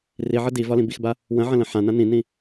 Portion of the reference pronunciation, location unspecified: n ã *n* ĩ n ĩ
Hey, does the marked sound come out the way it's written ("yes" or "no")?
yes